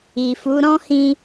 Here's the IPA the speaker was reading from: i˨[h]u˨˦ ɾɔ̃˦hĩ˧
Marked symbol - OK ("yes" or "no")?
no